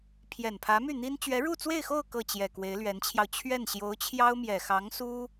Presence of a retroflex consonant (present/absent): present